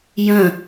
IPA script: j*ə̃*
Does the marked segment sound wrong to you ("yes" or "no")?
no